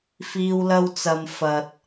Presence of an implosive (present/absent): absent